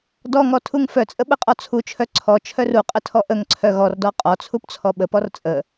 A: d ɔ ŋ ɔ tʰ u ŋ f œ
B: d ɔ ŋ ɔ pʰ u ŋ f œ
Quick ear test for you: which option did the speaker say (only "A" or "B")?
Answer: A